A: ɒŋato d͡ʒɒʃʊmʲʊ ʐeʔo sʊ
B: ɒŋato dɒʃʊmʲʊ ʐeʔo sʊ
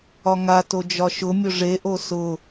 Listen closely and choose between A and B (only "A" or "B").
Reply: A